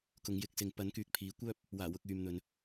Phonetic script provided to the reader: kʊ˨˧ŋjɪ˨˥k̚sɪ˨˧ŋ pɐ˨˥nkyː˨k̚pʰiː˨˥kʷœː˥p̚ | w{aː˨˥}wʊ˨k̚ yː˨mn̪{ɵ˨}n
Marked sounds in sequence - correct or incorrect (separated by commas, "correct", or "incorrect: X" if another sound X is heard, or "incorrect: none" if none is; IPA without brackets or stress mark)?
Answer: incorrect: aː˨˩, correct